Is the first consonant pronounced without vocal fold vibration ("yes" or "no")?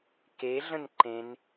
yes